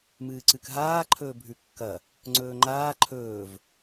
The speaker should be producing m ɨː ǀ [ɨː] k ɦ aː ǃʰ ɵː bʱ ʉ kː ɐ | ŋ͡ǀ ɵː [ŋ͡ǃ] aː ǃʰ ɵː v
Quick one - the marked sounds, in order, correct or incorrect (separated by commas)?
incorrect, correct